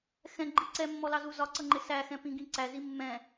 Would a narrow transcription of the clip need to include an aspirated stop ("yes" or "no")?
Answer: no